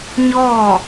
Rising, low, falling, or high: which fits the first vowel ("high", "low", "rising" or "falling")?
falling